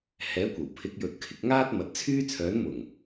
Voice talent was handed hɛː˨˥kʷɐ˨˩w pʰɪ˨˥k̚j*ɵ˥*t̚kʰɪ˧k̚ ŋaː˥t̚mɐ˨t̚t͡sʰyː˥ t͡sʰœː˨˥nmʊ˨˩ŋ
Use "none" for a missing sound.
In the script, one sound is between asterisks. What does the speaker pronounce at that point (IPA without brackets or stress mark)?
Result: ɵ˨